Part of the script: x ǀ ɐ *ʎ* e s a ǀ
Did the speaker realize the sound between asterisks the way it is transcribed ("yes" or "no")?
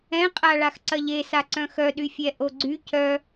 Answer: yes